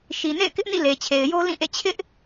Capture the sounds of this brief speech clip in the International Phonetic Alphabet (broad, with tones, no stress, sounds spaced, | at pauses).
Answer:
ʃ i˨ n ḛ˦˨ ɪ̯ k ɪ˦ ʔ n ḭ˦˨ l e˨ t͡ɕʰ e˨ ɪ̯ j o˦ l ĩ˦˨ ʔ ḛ˦˨ t͡ɕʰ ɪ˦ ʔ